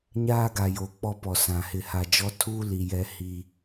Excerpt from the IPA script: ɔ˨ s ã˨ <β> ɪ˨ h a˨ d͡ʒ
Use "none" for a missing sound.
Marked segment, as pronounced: h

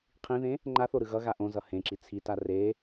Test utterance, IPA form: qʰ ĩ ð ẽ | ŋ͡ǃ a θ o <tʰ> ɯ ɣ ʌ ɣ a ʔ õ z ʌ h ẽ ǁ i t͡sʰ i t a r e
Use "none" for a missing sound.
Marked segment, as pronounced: ɾ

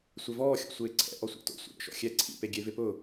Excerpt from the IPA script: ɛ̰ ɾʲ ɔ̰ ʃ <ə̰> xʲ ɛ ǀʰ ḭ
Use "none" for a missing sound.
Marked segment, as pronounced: ɔ̰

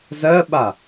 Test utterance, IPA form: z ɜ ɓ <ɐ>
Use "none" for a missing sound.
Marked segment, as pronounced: a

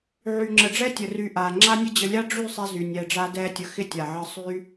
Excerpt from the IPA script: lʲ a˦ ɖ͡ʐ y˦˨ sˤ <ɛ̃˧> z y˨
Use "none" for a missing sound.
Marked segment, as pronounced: ɛ˧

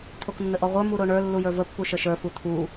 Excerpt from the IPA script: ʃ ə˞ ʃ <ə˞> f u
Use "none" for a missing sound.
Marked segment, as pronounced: ə˞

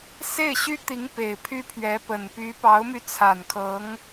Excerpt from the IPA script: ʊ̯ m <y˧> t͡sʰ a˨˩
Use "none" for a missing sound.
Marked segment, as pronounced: y˧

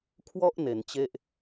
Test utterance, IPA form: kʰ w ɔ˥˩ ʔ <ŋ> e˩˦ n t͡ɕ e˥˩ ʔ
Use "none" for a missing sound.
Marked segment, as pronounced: n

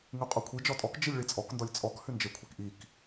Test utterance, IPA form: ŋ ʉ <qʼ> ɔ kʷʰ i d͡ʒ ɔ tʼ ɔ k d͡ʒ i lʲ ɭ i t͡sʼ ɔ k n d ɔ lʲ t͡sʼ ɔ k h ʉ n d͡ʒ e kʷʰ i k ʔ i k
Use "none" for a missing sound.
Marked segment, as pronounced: qʼ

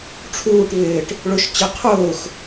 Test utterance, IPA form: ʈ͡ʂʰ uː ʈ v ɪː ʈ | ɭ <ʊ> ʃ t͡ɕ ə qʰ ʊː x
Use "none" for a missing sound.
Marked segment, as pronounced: ʊ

